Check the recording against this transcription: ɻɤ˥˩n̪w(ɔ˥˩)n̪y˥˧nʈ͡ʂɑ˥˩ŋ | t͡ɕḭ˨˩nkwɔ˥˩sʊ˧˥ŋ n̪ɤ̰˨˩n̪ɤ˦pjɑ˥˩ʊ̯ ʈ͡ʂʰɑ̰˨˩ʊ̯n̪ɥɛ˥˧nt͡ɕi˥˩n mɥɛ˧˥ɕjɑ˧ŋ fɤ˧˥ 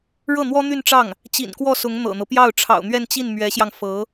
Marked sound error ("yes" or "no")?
yes